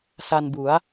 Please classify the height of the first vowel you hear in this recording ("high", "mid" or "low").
low